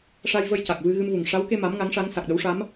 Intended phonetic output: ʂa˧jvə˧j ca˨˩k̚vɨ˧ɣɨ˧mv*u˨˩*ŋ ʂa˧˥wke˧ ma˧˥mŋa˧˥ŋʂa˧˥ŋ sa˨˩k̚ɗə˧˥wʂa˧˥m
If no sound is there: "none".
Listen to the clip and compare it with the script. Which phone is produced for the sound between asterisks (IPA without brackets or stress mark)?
u˨˩